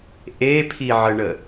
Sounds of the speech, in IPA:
ʔ e pʰ i ʕ ə ɳ ə

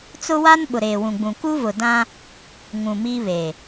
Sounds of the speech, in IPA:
t͡s ʊ˦ w a˦ n ɓ ʊ˨ ɾ eː˨ w ũ˨ ɡ͡b ũ˨ k u˦ v ʊ˨ d ã˦ | ŋ ũ˨ m i˦ β e˨

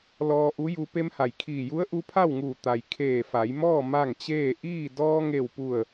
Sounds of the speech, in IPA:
l ɔː˧ ʔ u˧˥ j u˧ p e˧ m h a˩ j kʰ iː˧˩ j u˧˥ ə̯ ʔ u˧˥ pʰ a˥˨ w ŋ uː˧˩ t̪ a˩ j kʰ eː˧˩ f a˩˧ j m ɔː˥˨ m a˥˨ ŋ t͡ɕ eː˥˨ ʔ iː˥˨ d ɔː˧ ŋ e˧˩ w p u˧˩ ə̯

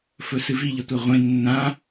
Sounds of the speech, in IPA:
f ɵ s ɨ v i ʎ ɐ tʷ a ʁʷ ẽ nː ã

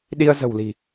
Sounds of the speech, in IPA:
ɗ i˧ ə̯ z ə̤˨˩ w l i̤˨˩

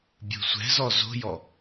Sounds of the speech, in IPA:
bʲ o̤ sʷ ɛ̤ z ɔ z o̤ j ɔ

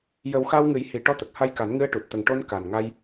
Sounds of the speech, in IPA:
j ə˨˩˦ w x a˧ w ŋ ɨ˨˩˦ j h i˨˩ ʈ ɔ˧ t̪ ə˨˩ k̚ h a˧ j k a˨˩˦ n ŋ ɨ˧ ə̯ ʈ u˨˩ t̚ t̪ ə˨˩ ŋ ʈ o˧ n k a˨˩ n ŋ a˧ j

